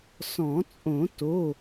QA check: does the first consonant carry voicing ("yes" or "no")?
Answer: no